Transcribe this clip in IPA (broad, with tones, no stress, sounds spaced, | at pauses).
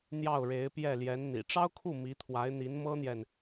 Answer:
n̪ j ɑ˥˩ ʊ̯ ɻ e˧˥ ɪ̯ p j ɛ˥˩ l j ɛ˧˥ n n̪ ḭ˨˩ ʈ͡ʂ ɑ˥ ʊ̯ kʰ u˥˩ m i˧˥ t̪ʰ w a˧˥ ɪ̯ n̪ i˧˥ n m ɤ˥ n̪ j ɛ˨ n